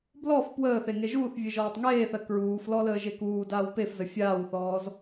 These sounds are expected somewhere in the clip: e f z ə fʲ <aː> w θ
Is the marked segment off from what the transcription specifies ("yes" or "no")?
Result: no